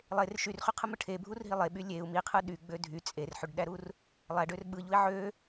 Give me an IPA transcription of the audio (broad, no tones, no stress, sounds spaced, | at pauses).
lˠ e r ʃ y r χ y qʰ ɯ m ɯ ʈʰ e bʱ u r ɦ i lˠ e ɓ y lʲ e u̯ m i qʰ ɯ ɗ y ɡ͡b ø dʱ y t͡sʼ e r ħ y ɖ ɗ æ ɾ u r | lˠ æ ɖ ø r ɓ ɯ ʎ u i̯ ʕ ø